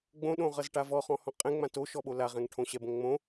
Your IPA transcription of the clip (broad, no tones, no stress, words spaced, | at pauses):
ɡ͡bõɗõʁʌz ʈavɔχɔ̃ hɔ̃qʼɛ̃ŋ͡mã to ʃɔɓolaʁɛ̃ŋ ʈʰõɕɛbõŋŋ͡mõ